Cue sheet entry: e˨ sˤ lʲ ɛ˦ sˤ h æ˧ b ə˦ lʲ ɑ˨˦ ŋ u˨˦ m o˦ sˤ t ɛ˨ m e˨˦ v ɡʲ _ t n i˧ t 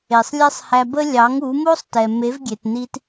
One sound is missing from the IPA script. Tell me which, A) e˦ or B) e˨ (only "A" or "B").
B